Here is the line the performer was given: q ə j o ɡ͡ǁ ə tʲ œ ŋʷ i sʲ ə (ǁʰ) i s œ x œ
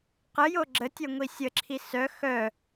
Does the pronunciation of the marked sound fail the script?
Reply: no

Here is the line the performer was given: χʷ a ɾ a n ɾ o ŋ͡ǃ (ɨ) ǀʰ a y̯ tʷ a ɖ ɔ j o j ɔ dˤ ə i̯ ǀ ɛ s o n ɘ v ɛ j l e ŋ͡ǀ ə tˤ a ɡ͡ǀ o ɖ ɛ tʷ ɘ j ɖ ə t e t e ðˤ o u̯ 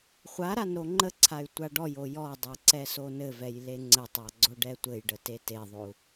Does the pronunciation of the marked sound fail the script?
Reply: yes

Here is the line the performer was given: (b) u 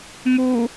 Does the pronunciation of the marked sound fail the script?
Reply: yes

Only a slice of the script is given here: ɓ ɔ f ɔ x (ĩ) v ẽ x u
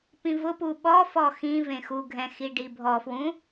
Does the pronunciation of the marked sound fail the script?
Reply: no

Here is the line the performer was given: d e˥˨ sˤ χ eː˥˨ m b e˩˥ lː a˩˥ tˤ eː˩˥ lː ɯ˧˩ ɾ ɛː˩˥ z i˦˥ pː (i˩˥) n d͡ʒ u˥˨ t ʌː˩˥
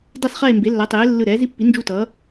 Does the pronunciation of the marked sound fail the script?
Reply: no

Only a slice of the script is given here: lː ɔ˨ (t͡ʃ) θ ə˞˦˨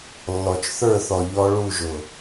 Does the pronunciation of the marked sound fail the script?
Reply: no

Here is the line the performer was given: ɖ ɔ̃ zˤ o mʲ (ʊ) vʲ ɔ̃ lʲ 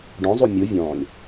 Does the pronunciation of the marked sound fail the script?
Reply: no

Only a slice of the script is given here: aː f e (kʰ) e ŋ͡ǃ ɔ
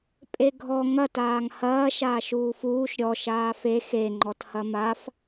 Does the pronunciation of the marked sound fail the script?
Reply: yes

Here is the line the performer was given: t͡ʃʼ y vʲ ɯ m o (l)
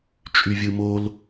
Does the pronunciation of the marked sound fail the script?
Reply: no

